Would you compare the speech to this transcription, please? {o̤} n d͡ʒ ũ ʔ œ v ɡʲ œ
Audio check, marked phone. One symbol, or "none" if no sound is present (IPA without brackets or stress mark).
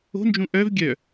o̤